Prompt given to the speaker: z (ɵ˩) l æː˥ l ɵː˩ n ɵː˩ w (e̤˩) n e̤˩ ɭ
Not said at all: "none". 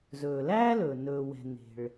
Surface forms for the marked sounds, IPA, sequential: ɵː˩, ɛ̤˩

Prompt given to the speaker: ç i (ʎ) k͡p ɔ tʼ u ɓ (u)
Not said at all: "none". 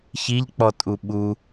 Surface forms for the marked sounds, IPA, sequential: ʎ, u

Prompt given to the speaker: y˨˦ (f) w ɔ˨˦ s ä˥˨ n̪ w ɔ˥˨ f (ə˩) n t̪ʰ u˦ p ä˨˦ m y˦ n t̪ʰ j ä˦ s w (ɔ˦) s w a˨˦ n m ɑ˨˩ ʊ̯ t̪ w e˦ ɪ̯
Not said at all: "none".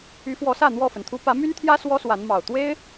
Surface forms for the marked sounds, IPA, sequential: f, ə˩, ɔ˦

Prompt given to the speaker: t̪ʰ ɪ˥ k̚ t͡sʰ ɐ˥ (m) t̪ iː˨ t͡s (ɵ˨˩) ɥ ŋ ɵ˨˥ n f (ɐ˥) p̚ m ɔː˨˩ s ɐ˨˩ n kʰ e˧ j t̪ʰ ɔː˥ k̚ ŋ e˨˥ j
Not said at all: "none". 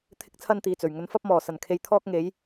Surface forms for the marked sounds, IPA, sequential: n, ɵ˨˩, ɐ˥

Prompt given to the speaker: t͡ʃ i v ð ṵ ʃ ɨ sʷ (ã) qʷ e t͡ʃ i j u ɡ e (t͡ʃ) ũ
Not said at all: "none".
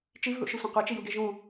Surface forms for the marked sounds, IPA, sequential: ɐ̃, ʒ

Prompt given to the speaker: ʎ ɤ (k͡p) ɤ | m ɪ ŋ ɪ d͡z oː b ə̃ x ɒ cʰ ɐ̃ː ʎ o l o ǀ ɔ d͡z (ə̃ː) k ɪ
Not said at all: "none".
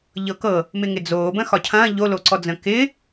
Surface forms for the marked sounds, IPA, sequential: k, ə̃ː

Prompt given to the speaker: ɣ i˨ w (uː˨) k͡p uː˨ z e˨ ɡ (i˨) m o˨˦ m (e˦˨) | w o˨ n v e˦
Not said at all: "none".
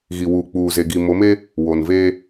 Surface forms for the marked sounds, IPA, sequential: uː˨, i˨, e˦

